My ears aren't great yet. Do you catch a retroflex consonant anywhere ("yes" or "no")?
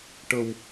yes